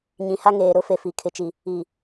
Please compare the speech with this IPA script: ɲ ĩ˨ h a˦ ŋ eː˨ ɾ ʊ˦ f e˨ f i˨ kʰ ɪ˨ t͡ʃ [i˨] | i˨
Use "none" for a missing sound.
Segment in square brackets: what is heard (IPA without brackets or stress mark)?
i˨